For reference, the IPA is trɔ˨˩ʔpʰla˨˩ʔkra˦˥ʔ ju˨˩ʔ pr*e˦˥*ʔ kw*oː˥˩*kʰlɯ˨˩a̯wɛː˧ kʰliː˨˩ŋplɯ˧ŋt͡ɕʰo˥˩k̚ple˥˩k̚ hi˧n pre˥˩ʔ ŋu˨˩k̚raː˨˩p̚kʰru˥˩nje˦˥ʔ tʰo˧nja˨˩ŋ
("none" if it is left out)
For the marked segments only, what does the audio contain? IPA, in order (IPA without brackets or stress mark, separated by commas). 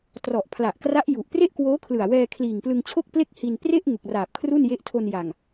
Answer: e˥˩, oː˦˥